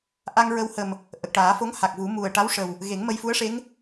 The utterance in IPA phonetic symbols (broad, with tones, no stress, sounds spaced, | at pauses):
ʔ a˧ ŋ ɹ ə˧ w h ə˨˩ m | ʔ ə˨˩ k̚ ʈ aː˨˩˦ f o˧˥ ŋ h a˨˩ k̚ v u˨˩˦ m u˨˩ ə̯ ʈ a˧˥ w ʂ ə˨˩ w | ɣ e˨˩˦ ŋ m ə˧ j f u˧˥ ə̯ ʂ e˧˥ ŋ